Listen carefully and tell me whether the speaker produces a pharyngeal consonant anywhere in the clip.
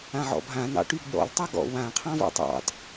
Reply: yes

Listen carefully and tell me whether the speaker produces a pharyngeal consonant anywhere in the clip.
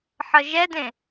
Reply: yes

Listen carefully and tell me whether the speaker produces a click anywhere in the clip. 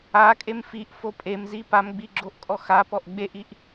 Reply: yes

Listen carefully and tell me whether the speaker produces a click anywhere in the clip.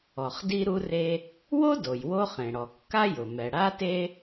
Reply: no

